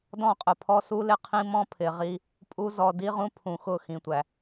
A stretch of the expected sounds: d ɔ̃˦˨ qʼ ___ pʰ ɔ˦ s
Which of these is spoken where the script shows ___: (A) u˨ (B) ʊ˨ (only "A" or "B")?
B